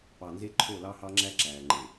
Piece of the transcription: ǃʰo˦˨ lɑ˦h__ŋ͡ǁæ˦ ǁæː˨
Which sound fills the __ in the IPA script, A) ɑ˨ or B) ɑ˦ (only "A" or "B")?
B